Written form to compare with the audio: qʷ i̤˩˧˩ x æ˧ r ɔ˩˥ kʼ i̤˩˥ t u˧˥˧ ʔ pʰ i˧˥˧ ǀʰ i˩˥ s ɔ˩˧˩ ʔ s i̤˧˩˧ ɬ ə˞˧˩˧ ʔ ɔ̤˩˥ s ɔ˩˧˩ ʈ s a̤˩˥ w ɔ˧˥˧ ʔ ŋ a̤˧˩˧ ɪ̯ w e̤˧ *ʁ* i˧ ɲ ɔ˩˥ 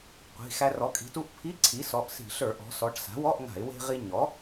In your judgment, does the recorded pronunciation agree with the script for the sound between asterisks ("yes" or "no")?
yes